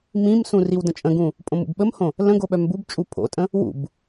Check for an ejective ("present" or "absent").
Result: present